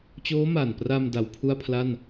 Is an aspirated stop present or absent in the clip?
present